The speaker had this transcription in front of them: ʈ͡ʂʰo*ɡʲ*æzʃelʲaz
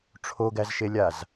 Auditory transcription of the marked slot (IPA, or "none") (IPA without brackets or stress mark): ɡ